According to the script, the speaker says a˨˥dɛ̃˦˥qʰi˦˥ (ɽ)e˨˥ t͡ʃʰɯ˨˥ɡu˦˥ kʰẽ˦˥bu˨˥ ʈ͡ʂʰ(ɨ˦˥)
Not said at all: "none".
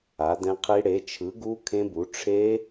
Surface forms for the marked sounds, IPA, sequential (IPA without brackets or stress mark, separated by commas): ɽ, e˦˥